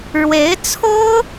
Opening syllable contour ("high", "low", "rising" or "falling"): rising